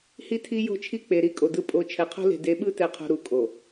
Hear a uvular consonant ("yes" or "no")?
yes